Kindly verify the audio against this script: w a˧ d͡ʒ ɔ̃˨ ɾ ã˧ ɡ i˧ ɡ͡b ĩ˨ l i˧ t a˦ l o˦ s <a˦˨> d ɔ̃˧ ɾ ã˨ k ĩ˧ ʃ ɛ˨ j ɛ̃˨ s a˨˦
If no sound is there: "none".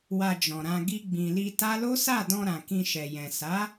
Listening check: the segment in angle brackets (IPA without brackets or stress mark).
a˦˨